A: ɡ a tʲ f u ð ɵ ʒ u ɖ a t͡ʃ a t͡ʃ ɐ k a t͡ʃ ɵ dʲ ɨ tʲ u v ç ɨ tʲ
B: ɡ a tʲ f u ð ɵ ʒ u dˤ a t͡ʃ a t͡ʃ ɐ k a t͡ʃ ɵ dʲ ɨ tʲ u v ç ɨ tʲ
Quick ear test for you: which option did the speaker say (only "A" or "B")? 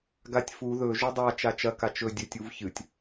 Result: B